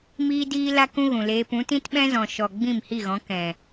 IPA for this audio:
m iː˦ d iː˦ l a˦ k ũ˦ ɣ ũ˨ l eː˧ p ũ˨˦ t ĩ˦ t ɓ ɛ̃˦ z ɔ̃˨ ʃ ɔ˨ ɡ͡b ĩ˦˨ m h i˦˨ ɣ ɔ̃˨˦ k ɛ̃˨

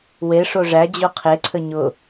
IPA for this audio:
w e ʂ o ʐ æ d͡ʑ o qʰ e ǀʰ ə ɲ ʊ

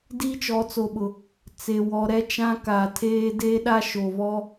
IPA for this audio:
d iː˦ t͡ʃ ɔ˨˦ t͡s o˨ ɓ ʊ˨ | t͡s e˨ w ɔ˨ ɾ ɛ˦ t͡ʃ ã˦ k a˨ tʰ eː˦ d eː˦ ɗ a˦ ʃ o˨ v ɔ˦

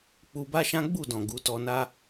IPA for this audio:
k͡p u˧ b a˦ ʃ ã˦ ɡ͡b u˦˨ d ɔ̃˨ ɡ u˨˦ t ɔ˧ n a˦

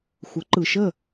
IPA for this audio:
xʷ ə˩˥ ǃ ɯ˩ ʃ ə˥˩

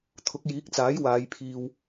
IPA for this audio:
t̪ʰ ʊ˨˥ k̚ j iː˨˥ k̚ t͡s aː˨˥ j w aː˨˧ j pʰ iː˨ w

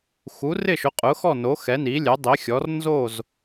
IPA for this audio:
x u˨˥ r ɪ˥˨ ʃ ʊ˨˥ qʼ ʊ˨˥ x ɔ˥˨ n o˨˥ x ɛ˨˥ n i˨˥ lʲ ɛ˨˥ dˤ i˨˥ xʲ ɔ˨˥ r n z o˥˨ z

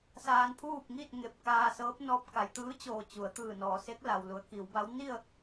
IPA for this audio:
s aː˧ n pʰ uː˥˨ p̚ ŋ iː˥˨ t̚ ŋ e˧˩ p̚ k aː˧ s ɤː˧˥ p̚ n ɔː˧˥ p̚ k a˩ j t̪ ɯː˧˥ t͡ɕ oː˧˩ t͡ɕ u˩˧ ə̯ t̪ ɯː˧˩ n ɔː˩˧ s e˧˥ k̚ l a˩ w l u˩˧ ə̯ k i˩˧ w b a˧˥ w n i˥˨ ə̯

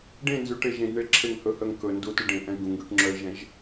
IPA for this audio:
ɖ ẽ n z y ʈ e ʒ ẽ ʒ ɳ e ǁʰ e ŋ h ɵ h œ ŋ k ɵ n d u t ɵ ɖ ẽ ʔ ɛ̃ i̯ ɡ ũ ŋ ɡ ʉ ʈ ŋ͡ǁ œ i̯ ʒ ɛ̃ ʒ

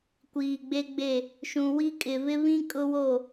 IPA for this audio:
kʷ iː˨ ɡ͡b e˦ ɡ͡b e˦˨ | ʃ ũ˨ w i˦ kʼ ɪ˨ β ɪ˦ β ĩ˦ kʼ ʊ˦ w o˦˨

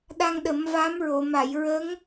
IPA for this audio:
ɗ a˧ ŋ ɗ ə˨˩˦ m v a˧˥ m ɹ o˨˩˨ m a˨˩˨ j ɹ ə˧˥ ŋ

